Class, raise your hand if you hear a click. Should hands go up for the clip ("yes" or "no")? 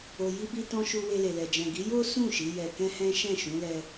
no